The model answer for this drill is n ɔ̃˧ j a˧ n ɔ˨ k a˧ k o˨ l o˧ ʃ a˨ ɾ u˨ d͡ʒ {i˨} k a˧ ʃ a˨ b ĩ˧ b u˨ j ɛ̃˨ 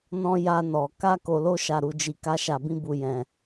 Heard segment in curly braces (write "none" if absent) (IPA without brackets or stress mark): i˨